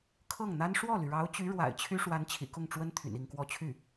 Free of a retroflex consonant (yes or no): no